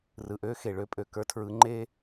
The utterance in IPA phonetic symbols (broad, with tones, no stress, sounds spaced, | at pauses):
r ɯ˨ ʔ ø˦ x e˨ ɭ ø˦ pʼ ø˨ k ə˞˦ tʰ ɹ ɯ˨˦ ŋ͡ǃ e˦